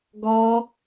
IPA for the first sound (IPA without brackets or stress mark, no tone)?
ɡ